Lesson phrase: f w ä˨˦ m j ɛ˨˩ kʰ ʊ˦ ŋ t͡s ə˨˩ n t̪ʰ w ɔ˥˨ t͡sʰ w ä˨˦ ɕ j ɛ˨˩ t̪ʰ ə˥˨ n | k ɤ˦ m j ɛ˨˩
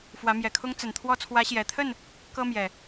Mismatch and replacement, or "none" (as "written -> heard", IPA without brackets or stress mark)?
none